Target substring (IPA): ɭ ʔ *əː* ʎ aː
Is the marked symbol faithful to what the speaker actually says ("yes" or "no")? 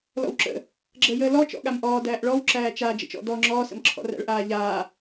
no